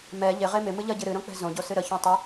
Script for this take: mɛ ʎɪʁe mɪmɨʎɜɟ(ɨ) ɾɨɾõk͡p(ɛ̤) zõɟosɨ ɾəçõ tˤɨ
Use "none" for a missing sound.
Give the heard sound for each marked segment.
ɨ, ɛ̤

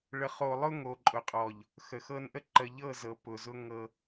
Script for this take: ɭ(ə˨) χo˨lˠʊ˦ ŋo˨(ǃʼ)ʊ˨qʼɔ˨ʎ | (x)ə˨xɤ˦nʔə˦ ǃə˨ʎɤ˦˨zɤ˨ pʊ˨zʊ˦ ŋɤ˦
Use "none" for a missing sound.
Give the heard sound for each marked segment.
ə˨, ǃʼ, x

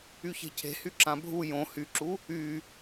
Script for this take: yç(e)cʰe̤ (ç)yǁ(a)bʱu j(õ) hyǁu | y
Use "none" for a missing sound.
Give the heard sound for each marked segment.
e̤, h, ã, õ

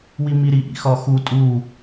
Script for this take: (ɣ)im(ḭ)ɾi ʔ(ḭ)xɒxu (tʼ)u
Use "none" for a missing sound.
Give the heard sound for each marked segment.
w, i, ḭ, tʼ

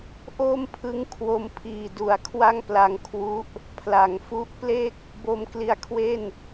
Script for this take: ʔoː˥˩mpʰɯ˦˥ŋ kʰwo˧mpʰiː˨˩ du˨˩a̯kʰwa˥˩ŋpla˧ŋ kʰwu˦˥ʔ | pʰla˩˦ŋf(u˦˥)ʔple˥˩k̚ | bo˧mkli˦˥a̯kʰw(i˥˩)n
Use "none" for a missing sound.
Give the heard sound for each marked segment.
u˦˥, e˥˩

